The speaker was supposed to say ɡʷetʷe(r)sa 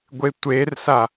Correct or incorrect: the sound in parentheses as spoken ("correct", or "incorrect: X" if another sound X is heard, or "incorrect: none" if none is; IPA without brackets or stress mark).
correct